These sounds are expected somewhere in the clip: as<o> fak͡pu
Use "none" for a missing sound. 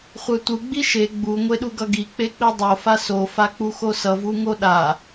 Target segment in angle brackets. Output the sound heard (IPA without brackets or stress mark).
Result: o